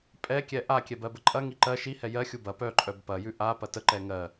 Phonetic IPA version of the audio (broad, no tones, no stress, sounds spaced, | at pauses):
pʼ ɛ kʲ ɛ ʔ a kʲ ɛ b ɜ b ə ǃʼ ɐ ŋ i ǃ ɜ ʃ i h ɛ j ɜ xʲ u b ɐ p œ ǃʼ œ b p ɐ j ʉ ʔ a p ɐ t ə ǃ ɛ ŋ ɜ